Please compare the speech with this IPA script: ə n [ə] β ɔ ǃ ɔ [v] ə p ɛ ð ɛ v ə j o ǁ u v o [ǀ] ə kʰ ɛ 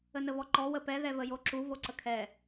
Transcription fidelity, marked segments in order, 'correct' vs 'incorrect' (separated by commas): correct, incorrect, correct